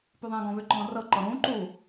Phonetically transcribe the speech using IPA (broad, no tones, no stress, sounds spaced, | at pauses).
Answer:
p y ðˤ ɛ̃ː ɡ ɔ̃ β ʏ ǃ ɔ̃ː r ɤ ǃ ɔ ɾ ũː ǃ u